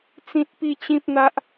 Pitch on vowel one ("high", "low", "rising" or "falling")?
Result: high